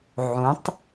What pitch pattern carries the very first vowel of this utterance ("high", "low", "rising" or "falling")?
rising